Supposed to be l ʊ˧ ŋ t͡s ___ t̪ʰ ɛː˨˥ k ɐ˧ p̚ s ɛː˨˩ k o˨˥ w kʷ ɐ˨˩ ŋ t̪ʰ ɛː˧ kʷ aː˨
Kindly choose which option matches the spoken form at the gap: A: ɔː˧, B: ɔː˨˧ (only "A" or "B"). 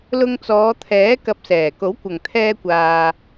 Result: B